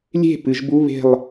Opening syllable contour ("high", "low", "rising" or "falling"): falling